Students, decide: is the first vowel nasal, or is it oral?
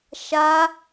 oral